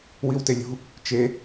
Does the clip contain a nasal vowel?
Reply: no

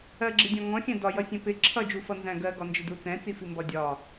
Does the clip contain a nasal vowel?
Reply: yes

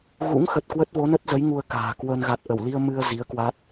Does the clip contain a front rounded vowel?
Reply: no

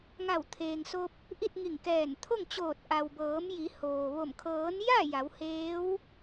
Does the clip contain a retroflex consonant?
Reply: no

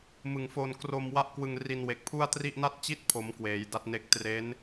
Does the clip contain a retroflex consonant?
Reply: no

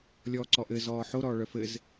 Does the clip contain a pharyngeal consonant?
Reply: yes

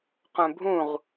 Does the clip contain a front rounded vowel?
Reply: yes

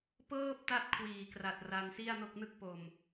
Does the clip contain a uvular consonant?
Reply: no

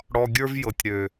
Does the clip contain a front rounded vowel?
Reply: yes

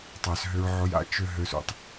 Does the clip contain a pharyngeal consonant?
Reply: yes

